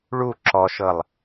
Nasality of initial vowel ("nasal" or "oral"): oral